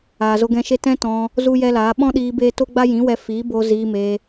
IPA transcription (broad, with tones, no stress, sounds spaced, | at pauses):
aː˨ z o˧ ɡ ɛ̃˧ ʃ e˦ t ɛ̃˦ t ɔ̃˧ | z u˦ j ɛ˦ l aː˨˦ ɓ ɔ̃˦ ɗ iː˧ b eː˦ t o˦ ɡ͡b a˦ j ĩ˨˦ w ɛ˧ f iː˨˦ b o˧ z iː˧ m eː˧